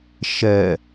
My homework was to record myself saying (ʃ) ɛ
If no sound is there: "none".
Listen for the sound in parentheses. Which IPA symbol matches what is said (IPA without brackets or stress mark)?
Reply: ʃ